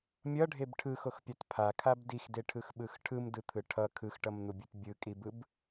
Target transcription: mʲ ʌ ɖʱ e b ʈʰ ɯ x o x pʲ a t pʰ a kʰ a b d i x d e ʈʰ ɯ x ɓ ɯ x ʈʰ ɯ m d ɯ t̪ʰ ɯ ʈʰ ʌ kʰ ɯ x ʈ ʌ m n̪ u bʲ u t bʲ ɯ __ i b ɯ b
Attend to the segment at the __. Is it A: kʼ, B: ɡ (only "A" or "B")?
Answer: A